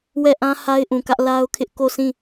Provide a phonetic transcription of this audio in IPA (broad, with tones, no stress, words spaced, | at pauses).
wɛ˦˨ʔã˦ ha˦ɪ̯ʔũ˨kä˦ʔ la˦ʊ̯kʰɪ˦ʔ ko˦˨sʰĩ˦˨